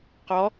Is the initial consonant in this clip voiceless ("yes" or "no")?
yes